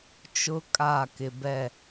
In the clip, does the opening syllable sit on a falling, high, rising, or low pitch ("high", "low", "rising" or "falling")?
high